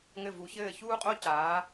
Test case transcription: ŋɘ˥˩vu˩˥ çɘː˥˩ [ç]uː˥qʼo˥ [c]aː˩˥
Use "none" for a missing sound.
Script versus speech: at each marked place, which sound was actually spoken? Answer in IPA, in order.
ç, c

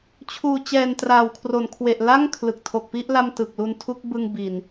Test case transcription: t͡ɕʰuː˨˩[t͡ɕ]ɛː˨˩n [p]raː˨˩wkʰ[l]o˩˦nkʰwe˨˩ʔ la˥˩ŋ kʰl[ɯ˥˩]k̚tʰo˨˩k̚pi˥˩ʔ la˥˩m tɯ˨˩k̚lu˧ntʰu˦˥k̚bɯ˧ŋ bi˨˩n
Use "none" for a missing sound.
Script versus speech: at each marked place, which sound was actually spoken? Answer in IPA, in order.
t͡ɕ, t, r, ɯ˨˩

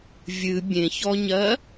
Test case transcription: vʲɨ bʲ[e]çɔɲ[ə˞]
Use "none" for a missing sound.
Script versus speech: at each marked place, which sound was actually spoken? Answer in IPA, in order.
ẽ, ɜ

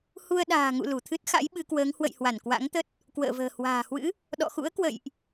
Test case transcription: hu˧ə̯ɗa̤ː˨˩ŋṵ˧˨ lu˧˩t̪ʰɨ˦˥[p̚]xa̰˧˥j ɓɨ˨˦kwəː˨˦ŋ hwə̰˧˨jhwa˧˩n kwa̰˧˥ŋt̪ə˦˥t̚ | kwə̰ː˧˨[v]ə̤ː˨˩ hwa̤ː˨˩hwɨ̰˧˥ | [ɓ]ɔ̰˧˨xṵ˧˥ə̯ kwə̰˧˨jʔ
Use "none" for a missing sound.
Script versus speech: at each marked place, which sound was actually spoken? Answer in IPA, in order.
t̚, v, ɗ

